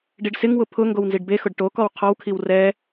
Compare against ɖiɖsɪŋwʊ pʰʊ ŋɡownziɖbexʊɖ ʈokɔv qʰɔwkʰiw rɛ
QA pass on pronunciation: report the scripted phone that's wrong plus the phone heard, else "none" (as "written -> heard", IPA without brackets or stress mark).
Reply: v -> w